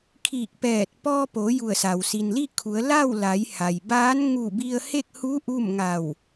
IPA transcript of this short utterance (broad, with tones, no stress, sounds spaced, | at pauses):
kʰ iː˧˩ k̚ p ɛː˧˩ t̚ p ɔː˧ p o˩˧ j u˧˩ ə̯ s a˩ w s i˩ n l i˥˨ kʰ u˩˧ ə̯ l a˥˨ w l a˩˧ j h a˩ j b aː˧˥ n ŋ u˧˩ b i˧ ə̯ h e˥˨ k̚ h u˧˥ ʔ u˥˨ m ŋ a˧˩ w